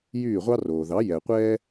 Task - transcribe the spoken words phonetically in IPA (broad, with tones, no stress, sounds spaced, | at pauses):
j yː˥˩ ʁʷ ɑ˥ r oː˩ ð ɑ˩˥ j ɛ˩ qʷ ɛː˥